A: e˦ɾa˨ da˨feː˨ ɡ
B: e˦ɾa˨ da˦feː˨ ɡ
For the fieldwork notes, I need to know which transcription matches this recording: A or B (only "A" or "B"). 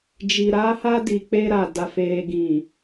A